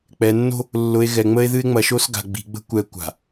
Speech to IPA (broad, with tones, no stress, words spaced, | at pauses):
k͡pɛ˨nːo̤˦ | lːʊ˨e̯ ɣɛ˨ŋ͡mə˦e̯ ðɨ˦e̯ŋ͡mɐ˨˦ʃo˦sɡa̤˨ ɡ͡bi̤˨ɡ͡bə̤˦ kʷɛ˨ kʷa̤˨